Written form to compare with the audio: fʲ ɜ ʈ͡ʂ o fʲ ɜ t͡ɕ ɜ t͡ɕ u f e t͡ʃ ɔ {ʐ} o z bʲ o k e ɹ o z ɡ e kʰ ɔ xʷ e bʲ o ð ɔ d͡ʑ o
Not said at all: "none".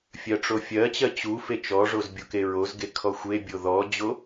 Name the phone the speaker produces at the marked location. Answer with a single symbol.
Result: ʐ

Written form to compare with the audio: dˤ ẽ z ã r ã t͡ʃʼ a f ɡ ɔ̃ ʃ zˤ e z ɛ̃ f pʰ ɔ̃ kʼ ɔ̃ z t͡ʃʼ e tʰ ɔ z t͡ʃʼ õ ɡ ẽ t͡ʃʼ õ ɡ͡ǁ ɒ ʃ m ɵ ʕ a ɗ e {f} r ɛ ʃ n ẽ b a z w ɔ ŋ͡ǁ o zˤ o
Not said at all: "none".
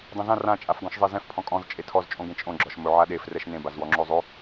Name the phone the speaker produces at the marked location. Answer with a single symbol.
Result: f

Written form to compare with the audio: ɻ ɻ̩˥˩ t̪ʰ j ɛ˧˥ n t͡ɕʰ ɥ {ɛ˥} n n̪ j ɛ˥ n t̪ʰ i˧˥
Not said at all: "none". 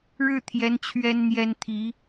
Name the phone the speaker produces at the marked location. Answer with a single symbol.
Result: ɛ˥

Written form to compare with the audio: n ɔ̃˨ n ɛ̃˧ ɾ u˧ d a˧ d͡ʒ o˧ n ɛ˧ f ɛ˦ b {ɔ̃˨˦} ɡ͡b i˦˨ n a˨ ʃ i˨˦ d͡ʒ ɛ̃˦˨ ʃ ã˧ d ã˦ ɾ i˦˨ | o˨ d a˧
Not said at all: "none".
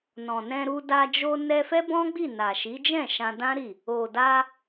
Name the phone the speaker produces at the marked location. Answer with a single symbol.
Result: ɔ̃˦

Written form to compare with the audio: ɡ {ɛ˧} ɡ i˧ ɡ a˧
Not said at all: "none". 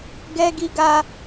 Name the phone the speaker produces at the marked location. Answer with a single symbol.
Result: ɛ˧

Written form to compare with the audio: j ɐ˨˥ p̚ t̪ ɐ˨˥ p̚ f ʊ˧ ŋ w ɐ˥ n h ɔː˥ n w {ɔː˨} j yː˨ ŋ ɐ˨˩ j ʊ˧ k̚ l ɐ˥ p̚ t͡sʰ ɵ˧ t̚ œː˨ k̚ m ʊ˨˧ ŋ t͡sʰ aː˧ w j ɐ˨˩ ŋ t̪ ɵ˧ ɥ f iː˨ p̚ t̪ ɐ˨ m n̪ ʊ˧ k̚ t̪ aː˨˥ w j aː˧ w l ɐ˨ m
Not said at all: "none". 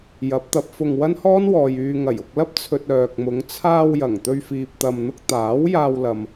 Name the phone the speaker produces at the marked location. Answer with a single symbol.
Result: ɔː˨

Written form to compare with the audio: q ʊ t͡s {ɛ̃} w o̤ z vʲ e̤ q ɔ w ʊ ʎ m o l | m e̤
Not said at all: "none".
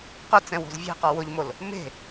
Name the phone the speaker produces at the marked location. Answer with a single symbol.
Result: ɛ̃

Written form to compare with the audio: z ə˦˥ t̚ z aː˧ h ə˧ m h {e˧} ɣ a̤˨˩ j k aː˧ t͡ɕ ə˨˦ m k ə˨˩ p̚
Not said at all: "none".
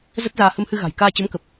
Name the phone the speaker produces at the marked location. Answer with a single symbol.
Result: ɨ˧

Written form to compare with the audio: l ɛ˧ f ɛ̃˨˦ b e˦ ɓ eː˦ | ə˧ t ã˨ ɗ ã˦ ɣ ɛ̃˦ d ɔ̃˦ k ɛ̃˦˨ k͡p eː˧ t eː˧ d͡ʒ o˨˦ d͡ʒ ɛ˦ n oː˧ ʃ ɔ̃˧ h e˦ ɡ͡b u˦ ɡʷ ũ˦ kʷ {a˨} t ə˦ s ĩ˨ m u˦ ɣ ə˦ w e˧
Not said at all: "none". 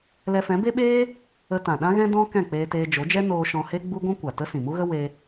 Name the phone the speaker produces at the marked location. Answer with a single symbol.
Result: a˨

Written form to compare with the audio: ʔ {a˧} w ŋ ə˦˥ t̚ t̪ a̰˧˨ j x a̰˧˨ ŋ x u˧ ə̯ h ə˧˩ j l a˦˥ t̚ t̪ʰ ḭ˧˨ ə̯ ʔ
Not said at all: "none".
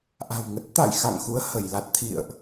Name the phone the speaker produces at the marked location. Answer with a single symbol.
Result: a̤˨˩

